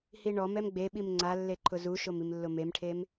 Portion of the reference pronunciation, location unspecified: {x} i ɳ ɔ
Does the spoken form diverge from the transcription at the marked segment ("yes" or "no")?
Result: yes